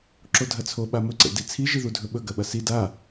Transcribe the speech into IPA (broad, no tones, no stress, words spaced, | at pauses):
ǁodʱɐt͡sʰo ɓamɵ ǀḛdit͡sʰi ʒiðudʱɵɓɵ ɡɐɓɐsi da